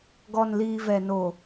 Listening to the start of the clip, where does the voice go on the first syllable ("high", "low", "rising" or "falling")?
low